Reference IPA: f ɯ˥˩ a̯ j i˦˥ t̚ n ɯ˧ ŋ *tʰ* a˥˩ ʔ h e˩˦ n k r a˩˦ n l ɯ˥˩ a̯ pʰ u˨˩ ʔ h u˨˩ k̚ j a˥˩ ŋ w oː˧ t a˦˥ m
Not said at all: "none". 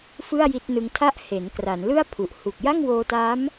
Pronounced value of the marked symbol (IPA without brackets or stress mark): tʰ